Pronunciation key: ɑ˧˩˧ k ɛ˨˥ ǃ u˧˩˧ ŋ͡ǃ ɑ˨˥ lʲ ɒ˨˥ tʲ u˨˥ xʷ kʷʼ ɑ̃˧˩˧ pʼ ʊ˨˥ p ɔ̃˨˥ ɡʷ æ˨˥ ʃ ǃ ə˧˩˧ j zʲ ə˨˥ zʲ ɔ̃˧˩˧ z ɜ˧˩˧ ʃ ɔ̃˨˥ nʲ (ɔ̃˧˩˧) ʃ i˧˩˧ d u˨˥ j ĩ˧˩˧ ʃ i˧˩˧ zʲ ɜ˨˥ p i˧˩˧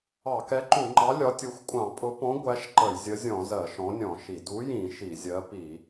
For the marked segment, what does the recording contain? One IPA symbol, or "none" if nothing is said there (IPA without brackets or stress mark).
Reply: ɔ̃˧˩˧